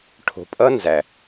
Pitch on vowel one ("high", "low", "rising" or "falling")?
low